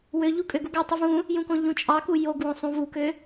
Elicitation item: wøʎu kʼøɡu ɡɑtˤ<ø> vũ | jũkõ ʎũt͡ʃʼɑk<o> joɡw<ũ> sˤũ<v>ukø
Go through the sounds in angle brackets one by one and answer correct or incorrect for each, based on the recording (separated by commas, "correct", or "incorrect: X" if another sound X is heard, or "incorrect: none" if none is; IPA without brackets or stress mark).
incorrect: y, incorrect: u, incorrect: õ, correct